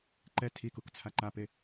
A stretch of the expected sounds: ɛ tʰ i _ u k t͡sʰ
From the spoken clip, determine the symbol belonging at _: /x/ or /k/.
k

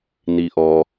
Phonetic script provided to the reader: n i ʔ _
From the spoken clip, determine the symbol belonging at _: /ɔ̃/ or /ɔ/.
ɔ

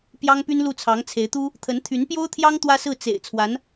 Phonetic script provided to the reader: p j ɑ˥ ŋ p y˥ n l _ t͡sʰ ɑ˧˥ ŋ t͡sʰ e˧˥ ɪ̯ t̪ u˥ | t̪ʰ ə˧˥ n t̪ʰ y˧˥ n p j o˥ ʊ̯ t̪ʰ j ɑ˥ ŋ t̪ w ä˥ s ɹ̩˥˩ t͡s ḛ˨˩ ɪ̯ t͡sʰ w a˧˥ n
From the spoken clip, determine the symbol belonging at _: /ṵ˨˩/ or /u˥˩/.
u˥˩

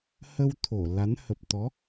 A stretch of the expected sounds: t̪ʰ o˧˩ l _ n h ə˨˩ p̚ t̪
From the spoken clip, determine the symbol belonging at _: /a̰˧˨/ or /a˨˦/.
a˨˦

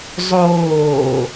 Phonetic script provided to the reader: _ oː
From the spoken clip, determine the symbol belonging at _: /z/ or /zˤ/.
zˤ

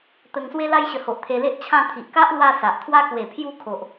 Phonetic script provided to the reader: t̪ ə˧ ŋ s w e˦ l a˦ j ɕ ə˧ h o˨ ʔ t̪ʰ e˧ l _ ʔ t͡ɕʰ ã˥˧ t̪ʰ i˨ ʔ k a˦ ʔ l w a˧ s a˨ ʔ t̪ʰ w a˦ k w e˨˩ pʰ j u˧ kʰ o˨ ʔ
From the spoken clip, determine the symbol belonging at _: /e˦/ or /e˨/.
e˦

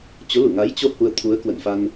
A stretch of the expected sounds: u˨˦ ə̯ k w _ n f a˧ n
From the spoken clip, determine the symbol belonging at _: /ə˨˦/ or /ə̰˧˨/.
ə̰˧˨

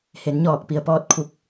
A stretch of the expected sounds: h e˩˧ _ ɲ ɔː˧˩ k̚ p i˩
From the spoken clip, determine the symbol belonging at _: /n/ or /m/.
n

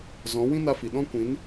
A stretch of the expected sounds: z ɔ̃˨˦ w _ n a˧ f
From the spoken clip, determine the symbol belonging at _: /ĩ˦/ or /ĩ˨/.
ĩ˦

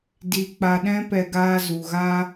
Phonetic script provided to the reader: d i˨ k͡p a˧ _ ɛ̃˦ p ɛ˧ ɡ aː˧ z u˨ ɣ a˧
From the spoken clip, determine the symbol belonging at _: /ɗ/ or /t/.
ɗ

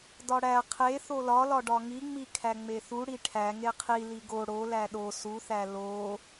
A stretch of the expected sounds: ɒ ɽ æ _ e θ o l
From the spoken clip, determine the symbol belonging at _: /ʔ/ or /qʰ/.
qʰ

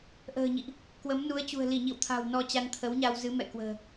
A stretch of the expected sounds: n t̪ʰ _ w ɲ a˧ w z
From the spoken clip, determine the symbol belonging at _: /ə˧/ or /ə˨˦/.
ə˨˦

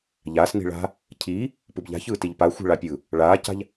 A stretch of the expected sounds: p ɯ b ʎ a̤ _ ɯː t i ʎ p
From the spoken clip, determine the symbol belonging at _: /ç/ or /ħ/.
ç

